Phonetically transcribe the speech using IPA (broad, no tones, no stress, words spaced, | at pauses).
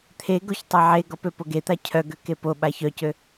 t̪ʰeɡoç tˤaʕeɡɔp øpoɡet̪a cʰœɡø kepoɓa çœcø